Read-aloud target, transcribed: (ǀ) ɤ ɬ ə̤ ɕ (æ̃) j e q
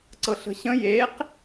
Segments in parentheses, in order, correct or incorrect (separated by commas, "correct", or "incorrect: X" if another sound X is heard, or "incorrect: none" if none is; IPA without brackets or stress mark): correct, incorrect: ə̃